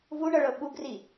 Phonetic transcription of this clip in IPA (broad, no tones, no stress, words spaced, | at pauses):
vuɳɤɭɤ ɓuɡri